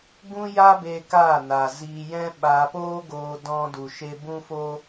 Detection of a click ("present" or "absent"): absent